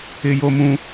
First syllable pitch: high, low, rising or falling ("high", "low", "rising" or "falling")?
high